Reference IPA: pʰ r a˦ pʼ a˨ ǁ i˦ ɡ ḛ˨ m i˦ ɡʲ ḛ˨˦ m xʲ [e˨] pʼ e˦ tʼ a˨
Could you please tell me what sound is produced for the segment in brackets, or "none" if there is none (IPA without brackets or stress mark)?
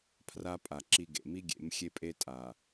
e˦